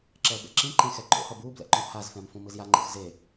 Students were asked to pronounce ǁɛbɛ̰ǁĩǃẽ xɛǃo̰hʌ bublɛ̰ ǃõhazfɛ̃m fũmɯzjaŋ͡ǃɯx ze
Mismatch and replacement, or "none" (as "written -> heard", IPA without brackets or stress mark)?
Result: none